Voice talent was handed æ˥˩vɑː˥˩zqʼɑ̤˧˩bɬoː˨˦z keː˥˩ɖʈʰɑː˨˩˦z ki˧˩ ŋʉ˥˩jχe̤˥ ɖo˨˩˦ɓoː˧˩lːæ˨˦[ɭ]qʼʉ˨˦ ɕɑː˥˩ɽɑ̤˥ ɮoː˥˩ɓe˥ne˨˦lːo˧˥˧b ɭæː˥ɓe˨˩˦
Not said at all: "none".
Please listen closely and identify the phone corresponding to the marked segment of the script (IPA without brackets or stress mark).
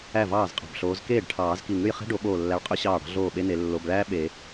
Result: ɭ